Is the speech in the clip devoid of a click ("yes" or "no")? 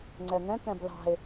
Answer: no